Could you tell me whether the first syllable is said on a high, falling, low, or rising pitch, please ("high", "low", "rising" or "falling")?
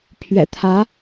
low